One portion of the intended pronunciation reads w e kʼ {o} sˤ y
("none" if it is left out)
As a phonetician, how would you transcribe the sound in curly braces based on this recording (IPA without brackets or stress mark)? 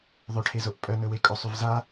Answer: o